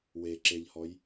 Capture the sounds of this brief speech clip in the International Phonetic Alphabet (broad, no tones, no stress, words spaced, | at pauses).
we ǁeʎhɔj